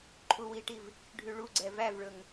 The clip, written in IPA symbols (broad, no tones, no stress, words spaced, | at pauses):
ǃʰuwiʈiv | ɖʱyɭuɡ͡ǀɛ vævɭɵŋ